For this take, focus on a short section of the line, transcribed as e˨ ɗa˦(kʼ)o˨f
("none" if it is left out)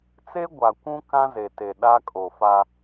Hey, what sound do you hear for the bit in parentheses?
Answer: kʼ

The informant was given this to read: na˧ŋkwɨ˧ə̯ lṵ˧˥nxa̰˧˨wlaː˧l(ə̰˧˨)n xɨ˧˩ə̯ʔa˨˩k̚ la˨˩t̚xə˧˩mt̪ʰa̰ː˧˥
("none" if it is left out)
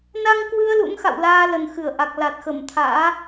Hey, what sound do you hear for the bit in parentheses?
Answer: ə˨˩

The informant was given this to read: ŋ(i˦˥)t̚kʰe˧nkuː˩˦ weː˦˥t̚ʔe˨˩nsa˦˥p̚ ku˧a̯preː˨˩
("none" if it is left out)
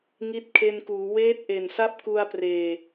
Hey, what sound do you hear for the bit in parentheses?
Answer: i˦˥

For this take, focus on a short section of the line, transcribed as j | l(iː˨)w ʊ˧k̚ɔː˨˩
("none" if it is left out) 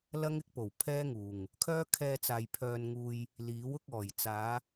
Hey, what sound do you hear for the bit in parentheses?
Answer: iː˨˥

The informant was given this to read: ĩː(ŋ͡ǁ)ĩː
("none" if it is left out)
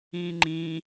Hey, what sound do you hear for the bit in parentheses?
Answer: ŋ͡ǃ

